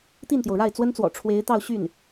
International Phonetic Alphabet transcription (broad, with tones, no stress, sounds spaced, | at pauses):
t̪ i˥˩ n t̪ j o˩ ʊ̯ ɻ a˥˩ ɪ̯ t͡s w ə˥ n t͡s w ɔ̰˨˩ ʈ͡ʂʰ w e˧˥ ɪ̯ t̪ ɑ˥˧ ʊ̯ ɕ y˥˩ n